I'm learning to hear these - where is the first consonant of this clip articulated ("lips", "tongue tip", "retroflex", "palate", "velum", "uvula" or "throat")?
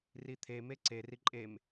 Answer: tongue tip